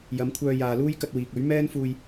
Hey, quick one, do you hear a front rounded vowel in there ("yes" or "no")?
yes